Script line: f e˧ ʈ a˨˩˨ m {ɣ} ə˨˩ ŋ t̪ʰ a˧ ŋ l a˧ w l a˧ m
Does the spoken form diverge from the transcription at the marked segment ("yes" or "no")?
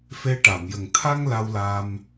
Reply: yes